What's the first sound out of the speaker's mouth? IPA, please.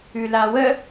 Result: ʉ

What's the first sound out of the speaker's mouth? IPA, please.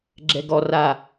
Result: ɡ͡ǁ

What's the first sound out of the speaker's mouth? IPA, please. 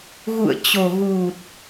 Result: ɣ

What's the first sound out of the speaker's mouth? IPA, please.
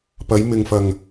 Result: p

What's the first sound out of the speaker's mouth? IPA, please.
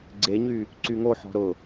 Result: ɡ͡ǀ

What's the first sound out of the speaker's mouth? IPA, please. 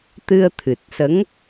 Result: t̪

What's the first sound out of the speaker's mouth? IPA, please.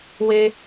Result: w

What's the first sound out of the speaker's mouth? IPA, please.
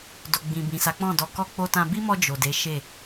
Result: d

